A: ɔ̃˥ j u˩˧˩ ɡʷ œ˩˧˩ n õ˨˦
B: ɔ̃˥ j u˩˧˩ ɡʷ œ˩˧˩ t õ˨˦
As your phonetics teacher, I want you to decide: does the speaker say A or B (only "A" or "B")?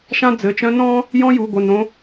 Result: A